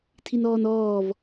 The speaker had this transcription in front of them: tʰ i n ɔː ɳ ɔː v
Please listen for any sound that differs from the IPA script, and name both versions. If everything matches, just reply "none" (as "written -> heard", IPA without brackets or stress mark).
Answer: ɳ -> n